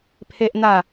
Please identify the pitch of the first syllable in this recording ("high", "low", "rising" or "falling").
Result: high